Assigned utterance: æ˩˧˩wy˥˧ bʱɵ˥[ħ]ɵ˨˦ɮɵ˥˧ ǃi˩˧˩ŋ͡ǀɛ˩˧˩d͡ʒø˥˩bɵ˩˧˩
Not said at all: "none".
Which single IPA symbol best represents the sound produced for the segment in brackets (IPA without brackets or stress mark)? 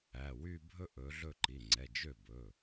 ʔ